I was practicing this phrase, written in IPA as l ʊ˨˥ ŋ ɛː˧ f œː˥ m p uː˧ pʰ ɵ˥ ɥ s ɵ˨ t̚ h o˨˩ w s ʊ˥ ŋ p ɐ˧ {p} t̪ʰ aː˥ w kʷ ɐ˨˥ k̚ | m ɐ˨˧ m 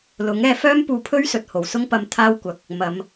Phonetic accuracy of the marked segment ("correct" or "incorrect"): incorrect